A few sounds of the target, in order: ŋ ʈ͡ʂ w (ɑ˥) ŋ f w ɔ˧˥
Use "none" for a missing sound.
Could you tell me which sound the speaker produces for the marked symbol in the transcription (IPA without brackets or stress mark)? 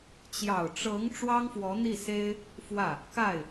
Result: ɑ˥